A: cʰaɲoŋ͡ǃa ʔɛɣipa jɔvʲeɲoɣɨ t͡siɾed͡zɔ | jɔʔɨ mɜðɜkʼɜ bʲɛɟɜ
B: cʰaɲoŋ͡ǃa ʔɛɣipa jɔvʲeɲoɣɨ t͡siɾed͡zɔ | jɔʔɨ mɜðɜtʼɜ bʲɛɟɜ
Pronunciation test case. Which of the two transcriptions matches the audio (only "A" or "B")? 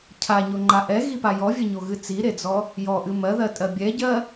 B